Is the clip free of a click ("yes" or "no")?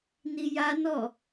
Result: yes